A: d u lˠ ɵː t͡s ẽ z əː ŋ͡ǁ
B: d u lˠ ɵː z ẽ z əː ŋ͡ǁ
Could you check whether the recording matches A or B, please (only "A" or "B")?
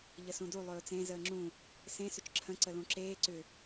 A